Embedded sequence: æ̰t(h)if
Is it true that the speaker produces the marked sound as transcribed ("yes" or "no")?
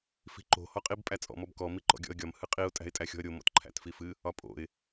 no